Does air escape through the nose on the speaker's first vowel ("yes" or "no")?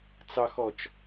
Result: no